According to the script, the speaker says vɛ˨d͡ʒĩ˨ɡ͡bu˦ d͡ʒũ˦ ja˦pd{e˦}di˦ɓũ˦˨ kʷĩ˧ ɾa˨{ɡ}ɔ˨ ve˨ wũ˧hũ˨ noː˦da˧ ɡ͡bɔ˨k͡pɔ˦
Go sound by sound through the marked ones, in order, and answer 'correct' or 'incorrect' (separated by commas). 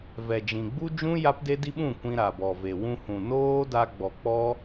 correct, incorrect